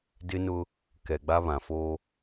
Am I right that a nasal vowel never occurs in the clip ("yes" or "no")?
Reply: no